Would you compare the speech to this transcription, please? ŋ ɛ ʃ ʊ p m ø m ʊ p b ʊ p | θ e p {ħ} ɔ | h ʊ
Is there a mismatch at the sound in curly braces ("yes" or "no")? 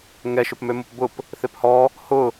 yes